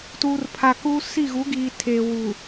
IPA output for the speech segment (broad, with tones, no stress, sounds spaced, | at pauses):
t uː˨ r pʰ a˨ k uː˦ s i˦˨ ɣ u˨˦ ɡ iː˨ tʰ eː˨ w uː˨